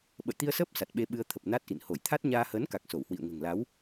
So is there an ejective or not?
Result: no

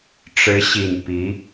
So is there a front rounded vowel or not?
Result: no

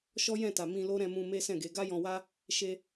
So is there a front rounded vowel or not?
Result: no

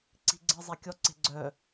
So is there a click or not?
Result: yes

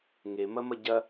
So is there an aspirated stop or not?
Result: no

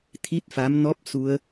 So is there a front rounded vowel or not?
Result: no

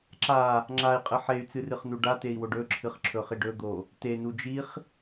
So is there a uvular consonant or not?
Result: yes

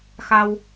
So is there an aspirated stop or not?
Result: no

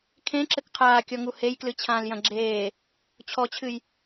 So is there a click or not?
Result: yes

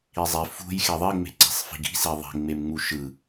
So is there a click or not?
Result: yes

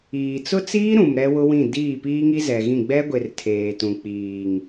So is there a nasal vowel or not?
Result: yes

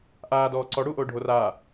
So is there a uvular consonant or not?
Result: no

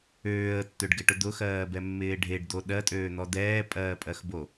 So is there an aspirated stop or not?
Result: no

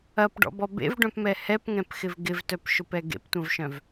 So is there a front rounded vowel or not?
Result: yes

